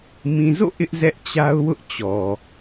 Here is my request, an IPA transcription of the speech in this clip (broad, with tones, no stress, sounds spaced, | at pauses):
m ĩ˨ z o̰˦˨ ʔ ɪ˦ ʔ z ɛ˦ ʔ t͡ɕ a˦ ʊ̯ w ʊ˦ ʔ t͡ɕ ɔ˨